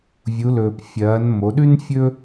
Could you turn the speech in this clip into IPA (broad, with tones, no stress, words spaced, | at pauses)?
vʲu˩˧lɵː˩p fʲɐː˩˧n mo˩˧ɗʉ˥nfʲɵ˥